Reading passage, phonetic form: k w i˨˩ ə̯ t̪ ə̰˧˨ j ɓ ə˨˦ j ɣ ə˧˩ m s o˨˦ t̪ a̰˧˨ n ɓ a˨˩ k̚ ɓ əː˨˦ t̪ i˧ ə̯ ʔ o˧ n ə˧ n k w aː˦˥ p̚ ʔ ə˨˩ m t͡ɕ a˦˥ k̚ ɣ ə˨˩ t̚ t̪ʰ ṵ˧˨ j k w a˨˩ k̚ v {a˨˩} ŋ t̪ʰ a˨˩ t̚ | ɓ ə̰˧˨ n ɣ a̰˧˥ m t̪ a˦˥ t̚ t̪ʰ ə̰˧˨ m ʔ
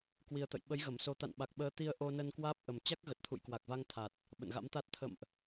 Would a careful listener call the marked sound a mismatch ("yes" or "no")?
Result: yes